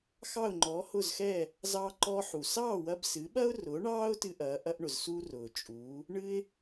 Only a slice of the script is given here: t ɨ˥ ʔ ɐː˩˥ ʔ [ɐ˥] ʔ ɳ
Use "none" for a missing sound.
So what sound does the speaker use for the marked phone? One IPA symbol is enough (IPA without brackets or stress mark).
ɐ˥